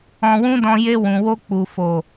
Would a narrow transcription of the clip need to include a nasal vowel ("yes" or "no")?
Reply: yes